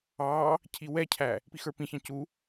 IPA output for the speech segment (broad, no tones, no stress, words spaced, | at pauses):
ɑ | cʰiwɛcʰæ | pixə˞pĩçɑ̃ cu